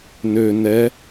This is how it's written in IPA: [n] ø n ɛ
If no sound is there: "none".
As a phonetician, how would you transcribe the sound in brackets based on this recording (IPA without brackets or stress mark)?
n